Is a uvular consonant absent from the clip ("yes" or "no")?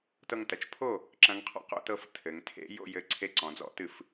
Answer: no